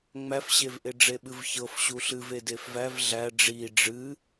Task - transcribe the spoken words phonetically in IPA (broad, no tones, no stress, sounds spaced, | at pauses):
ŋ͡m æ f ɕ e v ʔ e ɖ͡ʐ e ɓ ɨ v ç ɤ f ɕ u ɬ ɨ v e d e f v æ v ɮ æ ɖ͡ʐ i ɖ͡ʐ ɨ